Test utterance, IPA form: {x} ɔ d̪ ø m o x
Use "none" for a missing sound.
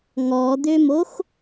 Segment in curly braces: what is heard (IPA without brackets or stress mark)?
ŋ